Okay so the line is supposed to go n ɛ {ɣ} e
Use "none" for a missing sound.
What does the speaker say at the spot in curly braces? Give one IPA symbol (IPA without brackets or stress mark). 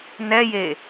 j